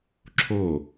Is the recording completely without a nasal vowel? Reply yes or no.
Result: yes